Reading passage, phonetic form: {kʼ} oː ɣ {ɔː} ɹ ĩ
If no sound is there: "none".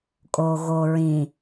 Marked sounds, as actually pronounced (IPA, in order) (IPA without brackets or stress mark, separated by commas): kʼ, oː